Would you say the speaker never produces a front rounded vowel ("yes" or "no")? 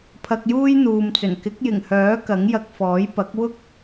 no